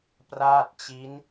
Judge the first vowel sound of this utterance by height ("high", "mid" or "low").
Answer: low